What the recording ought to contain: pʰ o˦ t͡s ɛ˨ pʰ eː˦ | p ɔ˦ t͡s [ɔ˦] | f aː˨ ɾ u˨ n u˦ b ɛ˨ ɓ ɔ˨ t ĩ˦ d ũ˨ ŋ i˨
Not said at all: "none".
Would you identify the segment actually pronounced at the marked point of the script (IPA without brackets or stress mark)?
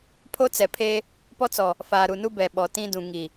ɔ˨